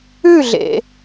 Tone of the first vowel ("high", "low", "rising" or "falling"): falling